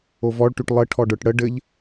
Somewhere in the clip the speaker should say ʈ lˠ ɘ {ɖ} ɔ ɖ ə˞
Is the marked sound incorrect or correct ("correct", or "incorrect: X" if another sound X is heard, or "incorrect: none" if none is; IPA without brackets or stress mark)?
incorrect: ʈʰ